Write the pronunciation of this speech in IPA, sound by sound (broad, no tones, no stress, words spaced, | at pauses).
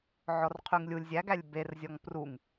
ʕɔrqʰyŋlʲulʲ zʲæɡælʲ berzʲɔŋ pruŋ